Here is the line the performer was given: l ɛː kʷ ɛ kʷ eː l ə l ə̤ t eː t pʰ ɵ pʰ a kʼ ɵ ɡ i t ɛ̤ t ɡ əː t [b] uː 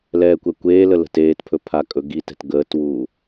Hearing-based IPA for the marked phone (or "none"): w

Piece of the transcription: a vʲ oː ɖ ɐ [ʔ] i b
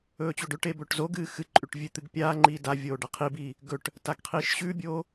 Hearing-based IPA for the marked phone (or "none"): qʰ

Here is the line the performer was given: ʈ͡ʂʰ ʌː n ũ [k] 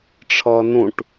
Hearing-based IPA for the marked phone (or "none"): ʈ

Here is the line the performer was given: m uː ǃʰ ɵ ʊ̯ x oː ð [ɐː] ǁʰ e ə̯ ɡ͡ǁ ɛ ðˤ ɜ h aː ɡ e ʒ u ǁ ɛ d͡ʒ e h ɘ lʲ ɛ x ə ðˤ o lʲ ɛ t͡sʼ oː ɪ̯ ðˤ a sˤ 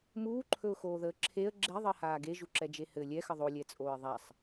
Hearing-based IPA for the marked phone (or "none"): əː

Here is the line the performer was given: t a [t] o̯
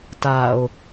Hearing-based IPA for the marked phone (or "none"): none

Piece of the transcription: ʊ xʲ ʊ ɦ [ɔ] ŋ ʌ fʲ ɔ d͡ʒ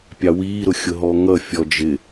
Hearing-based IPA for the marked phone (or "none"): ɔ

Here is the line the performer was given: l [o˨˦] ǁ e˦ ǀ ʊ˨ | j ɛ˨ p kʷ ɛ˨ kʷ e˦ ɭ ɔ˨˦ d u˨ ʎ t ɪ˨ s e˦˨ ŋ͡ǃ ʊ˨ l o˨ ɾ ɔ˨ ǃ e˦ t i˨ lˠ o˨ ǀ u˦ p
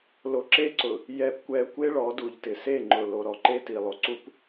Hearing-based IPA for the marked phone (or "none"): o˨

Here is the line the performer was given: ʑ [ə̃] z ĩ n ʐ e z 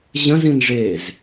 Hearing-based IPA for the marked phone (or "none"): ə̃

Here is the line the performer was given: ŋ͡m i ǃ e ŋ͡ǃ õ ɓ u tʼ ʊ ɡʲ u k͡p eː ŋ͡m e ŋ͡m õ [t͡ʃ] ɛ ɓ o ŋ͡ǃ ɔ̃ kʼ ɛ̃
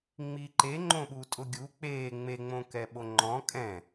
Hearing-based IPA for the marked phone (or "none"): k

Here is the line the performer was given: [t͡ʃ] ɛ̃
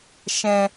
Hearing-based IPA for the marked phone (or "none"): ʃ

